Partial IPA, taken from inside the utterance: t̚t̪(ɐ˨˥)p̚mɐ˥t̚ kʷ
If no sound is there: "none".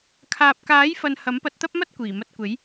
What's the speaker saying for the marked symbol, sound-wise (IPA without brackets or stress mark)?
ɐ˥